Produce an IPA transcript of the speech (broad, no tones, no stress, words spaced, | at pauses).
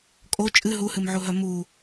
kʼo t͡ʃʼɨ ɦuhɨmʕuɦœ mu